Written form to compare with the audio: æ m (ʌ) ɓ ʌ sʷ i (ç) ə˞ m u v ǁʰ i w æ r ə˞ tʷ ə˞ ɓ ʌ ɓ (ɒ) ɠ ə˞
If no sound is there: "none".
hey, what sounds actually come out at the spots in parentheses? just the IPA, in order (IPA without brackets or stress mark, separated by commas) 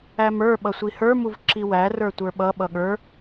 ə˞, h, ʌ